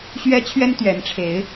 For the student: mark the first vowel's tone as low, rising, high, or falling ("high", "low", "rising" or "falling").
high